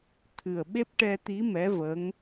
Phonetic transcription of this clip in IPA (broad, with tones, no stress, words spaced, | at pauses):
t̪ʰɨ˨˩ə̯ɓe˦˥p̚ʈɛ˧t̪i˧˥ mɛ˧˥və˧˥ŋ